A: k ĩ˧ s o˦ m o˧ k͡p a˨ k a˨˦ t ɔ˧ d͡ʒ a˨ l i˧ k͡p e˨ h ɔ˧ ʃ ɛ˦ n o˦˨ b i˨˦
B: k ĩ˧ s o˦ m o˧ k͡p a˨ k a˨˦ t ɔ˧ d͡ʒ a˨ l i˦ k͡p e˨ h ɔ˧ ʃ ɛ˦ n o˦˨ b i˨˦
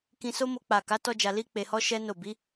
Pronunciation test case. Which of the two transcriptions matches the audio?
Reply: A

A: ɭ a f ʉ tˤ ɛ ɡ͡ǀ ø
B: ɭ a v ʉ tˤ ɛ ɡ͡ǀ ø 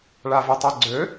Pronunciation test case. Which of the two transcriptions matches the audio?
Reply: B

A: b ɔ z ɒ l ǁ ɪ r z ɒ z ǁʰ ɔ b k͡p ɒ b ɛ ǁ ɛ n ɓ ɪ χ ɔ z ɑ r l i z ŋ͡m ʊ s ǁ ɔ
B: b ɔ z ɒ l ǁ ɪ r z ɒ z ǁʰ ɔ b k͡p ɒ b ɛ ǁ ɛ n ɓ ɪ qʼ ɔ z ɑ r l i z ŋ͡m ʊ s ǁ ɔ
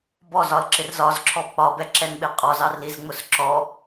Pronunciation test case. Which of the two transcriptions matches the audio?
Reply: B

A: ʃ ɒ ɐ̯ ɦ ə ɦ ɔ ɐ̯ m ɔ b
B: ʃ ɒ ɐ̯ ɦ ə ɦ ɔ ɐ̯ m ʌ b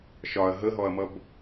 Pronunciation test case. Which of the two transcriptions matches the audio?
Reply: B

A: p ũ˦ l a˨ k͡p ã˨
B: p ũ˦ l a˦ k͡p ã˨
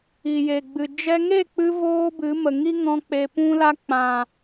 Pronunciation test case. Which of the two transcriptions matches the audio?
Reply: B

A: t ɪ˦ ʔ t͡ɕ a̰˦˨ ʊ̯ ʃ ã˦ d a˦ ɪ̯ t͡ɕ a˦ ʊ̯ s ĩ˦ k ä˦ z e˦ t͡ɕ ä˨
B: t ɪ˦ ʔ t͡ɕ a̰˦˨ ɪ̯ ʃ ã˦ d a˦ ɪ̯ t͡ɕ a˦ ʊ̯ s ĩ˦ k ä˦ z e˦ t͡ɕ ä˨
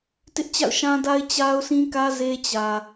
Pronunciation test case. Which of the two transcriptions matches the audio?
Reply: A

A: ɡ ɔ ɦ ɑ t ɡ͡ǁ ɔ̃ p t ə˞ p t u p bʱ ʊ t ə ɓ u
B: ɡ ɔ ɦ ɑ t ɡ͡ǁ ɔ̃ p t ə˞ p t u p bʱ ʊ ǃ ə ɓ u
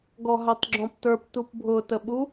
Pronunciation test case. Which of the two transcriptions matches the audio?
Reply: A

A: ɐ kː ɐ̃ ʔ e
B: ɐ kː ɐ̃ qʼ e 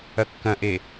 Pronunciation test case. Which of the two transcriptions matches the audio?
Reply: A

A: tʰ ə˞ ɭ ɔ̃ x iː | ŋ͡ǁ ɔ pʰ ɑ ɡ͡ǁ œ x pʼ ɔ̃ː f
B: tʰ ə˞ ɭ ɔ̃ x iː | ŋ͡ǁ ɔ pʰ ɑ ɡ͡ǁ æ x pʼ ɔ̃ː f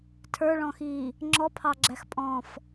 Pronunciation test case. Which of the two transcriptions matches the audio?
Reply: B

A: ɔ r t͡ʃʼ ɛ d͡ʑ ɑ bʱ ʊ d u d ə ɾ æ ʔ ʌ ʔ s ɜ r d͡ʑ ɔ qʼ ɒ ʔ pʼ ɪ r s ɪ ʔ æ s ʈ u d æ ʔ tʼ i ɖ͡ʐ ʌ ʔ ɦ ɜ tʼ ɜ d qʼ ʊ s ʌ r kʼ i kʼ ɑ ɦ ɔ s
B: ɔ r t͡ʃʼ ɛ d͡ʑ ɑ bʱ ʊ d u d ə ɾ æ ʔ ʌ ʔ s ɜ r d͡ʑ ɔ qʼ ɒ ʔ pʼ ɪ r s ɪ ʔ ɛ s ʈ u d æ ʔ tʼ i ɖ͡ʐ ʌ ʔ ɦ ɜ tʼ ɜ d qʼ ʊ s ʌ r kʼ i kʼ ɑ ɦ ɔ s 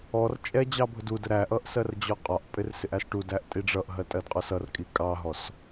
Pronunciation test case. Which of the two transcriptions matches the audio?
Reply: A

